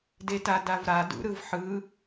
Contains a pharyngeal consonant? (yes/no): yes